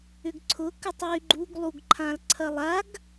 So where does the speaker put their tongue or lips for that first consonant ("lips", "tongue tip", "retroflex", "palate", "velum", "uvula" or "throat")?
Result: velum